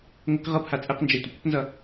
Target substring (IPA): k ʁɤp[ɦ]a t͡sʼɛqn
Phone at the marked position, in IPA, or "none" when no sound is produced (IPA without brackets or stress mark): h